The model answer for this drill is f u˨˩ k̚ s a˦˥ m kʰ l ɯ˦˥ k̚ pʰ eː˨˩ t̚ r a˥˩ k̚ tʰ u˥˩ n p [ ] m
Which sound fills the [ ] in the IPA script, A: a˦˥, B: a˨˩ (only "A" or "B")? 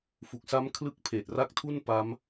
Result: A